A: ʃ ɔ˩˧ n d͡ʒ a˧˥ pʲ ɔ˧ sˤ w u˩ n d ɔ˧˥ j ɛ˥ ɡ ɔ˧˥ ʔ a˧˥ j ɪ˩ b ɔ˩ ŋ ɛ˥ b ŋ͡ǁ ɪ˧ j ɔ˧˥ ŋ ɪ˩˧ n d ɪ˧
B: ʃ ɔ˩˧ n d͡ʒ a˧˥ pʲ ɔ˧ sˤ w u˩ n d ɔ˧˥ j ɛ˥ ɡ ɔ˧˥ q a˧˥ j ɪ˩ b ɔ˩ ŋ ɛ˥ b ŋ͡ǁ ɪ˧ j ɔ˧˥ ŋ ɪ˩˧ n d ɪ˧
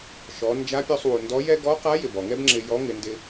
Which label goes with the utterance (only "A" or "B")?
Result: B